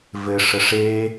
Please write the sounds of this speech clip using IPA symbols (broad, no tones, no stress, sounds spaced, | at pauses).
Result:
v ɘ ʂ ə ʂ e